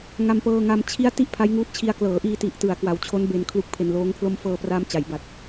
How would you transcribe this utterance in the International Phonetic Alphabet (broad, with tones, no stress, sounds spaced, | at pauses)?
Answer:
ŋ a˧ m p ɤː˧ ŋ a˧ m t͡ɕʰ i˦˥ a̯ t i˥˩ ʔ pʰ a˦˥ j ŋ uː˦˥ t̚ t͡ɕʰ i˧ a̯ k l ɤː˩˦ ʔ iː˧ t i˨˩ ʔ t ɯ˩˦ a̯ k w a˩˦ w t͡ɕʰ o˦˥ n b e˧ n kʰ l u˦˥ k̚ pʰ e˧ n l oː˦˥ ŋ pʰ l o˥˩ m f ɤː˧ p r aː˧ m t͡ɕ a˩˦ j b a˨˩ t̚